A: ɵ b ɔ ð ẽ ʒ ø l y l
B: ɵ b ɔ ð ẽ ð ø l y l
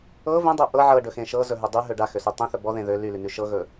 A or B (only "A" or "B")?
B